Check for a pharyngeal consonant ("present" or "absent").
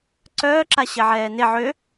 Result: present